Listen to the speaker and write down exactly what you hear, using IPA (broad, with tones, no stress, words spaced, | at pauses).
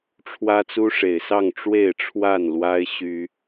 ʈ͡ʂʰwä˦t͡su˦ʂe˨˩ɪ̯sɑ˥˨ŋ ʈ͡ʂwe˥˨ɪ̯ʈ͡ʂʰwa˥˨nlwa˦ɪ̯ ɕy˦